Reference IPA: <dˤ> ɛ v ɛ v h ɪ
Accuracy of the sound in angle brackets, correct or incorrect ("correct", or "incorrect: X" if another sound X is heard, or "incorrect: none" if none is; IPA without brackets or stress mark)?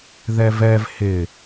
incorrect: ð